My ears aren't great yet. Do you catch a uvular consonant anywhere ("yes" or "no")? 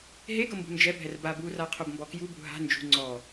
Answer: yes